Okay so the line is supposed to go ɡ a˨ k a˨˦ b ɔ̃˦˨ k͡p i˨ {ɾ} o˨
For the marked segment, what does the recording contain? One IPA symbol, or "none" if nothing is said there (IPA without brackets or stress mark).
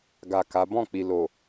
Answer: l